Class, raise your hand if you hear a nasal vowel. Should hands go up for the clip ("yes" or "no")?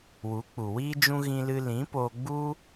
yes